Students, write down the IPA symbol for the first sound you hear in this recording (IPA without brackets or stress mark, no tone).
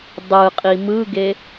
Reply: dˤ